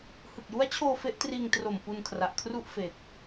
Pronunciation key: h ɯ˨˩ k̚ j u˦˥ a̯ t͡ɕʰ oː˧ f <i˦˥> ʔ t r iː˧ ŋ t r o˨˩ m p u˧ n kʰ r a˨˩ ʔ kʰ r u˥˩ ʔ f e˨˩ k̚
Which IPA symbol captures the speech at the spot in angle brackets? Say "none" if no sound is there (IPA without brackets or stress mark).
e˦˥